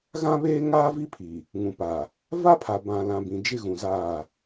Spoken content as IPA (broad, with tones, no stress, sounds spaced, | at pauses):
ɣ ã˦ β eː˦ ŋ aː˦ v i˦ pʰ i˨ | ŋ ũ˨ p a˨ | v a˦ pʰ a˨ b ã˨ l ã˨ b ĩ˨ d͡ʒ ɪ˦ ɣ ũ˨ z aː˦˨